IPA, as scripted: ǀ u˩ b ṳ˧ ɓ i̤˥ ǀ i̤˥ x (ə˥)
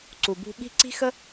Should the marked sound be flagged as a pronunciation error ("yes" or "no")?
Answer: no